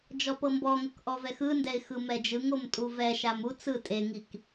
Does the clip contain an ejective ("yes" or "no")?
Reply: yes